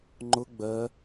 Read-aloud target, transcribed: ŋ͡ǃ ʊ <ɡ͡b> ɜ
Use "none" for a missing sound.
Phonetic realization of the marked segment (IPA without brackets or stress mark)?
ɡ͡b